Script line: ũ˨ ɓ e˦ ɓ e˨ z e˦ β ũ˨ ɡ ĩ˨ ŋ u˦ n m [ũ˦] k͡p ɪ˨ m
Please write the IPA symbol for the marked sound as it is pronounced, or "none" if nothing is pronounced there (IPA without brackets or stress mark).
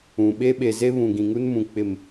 ũ˨